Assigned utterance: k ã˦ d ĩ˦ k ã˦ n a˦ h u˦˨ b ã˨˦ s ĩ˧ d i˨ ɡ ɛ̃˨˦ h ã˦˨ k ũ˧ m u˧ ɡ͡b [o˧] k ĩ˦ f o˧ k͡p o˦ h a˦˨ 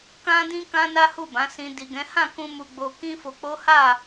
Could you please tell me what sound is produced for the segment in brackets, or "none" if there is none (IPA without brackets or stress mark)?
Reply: o˧